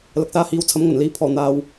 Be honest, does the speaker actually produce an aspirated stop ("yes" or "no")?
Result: yes